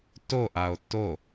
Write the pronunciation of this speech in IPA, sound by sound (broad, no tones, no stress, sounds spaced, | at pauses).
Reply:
t o ʔ a o̯ t o